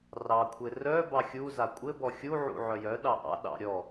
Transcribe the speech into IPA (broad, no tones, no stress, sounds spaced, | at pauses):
r ɑ kʷʰ ɘ r œ b ɑ xʲ u z a kʷʼ ɘ b ɔ xʲ u ʕ ṵ ʕ œ j œ ɗ ɑ ʔ ɑ̰ ɗ ɑ̰ ɾʲ ɔ